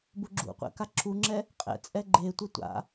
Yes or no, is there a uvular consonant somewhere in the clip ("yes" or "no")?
yes